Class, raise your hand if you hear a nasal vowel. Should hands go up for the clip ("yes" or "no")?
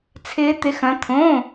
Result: yes